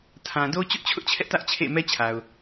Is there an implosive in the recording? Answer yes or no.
no